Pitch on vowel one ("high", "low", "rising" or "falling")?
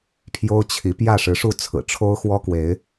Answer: high